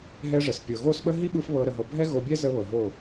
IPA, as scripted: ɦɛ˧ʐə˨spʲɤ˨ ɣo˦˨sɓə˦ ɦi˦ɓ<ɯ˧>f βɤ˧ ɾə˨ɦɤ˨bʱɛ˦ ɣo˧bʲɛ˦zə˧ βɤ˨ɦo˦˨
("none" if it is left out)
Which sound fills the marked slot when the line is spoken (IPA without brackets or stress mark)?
ɯ˧